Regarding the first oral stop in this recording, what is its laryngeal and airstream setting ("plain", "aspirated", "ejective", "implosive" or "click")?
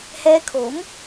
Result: aspirated